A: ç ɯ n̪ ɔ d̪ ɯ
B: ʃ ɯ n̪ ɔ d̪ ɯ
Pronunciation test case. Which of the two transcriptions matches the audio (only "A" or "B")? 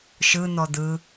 B